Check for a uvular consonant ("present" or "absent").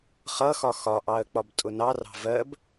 present